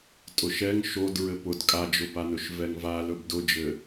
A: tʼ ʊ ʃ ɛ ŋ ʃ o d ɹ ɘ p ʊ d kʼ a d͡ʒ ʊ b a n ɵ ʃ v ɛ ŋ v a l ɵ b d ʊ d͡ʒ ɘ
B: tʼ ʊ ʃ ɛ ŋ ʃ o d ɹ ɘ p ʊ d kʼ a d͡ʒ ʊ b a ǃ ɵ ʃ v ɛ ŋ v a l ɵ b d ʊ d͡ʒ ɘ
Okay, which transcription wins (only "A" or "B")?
A